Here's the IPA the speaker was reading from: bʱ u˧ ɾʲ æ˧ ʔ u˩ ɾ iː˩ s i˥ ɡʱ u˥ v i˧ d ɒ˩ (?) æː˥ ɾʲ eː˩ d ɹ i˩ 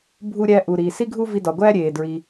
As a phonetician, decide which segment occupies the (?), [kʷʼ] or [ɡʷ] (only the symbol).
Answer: ɡʷ